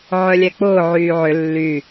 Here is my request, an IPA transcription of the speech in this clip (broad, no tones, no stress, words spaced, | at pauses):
ʕœlʲɛk͡pʊː ʕyːʕʏ lːy